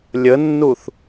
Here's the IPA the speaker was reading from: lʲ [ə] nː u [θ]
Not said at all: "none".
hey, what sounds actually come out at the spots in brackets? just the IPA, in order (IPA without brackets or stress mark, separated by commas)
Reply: ə, θ